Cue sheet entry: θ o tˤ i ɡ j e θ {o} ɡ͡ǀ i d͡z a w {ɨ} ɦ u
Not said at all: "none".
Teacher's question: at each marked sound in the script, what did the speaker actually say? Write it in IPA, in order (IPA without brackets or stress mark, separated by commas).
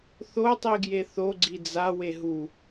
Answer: o, e